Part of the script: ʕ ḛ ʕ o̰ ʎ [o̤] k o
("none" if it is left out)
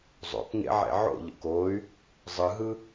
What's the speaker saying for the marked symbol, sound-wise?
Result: o̰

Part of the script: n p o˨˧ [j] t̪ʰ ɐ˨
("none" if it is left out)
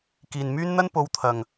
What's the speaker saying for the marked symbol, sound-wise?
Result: w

